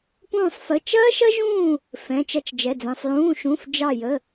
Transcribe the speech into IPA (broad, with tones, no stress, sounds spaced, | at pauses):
p ũː˥˧ sˤ f ə˧˥˧ t͡ʃ ɐː˥ ʃ ɐ˥ ʒ ũː˥˧ | f ɛ̃˧˥˧ t͡ʃ ɐ˥ t͡ʃ d͡ʒ ɛ˧˥˧ d͡z ɛ̃˧˥˧ sˤ j ũː˧˥˧ ʃ ũ˧˥˧ f d͡ʒ ɑ˥˧ j ə˧˥˧